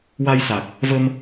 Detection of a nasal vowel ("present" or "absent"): absent